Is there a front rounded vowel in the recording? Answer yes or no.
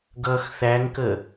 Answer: no